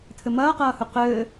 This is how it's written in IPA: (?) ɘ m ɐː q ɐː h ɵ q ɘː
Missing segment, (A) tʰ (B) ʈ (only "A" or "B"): A